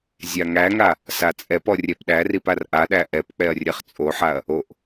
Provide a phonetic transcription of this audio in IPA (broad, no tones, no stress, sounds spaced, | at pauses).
zʲ a ŋ æ ŋ a | s a t͡sʼ ɛ p ɔ rʲ ɛ p ɗ æ r i p a r ʔ a ɗ æ ʔ ɛ p k͡p ɛ ɐ̯ rʲ ɛ χ t͡sʼ o ħ a ɐ̯ | o ʔ